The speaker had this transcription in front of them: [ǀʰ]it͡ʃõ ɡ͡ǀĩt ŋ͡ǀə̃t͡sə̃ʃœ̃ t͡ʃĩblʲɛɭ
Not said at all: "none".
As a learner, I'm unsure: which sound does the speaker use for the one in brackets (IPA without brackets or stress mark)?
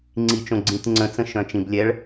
ŋ͡ǀ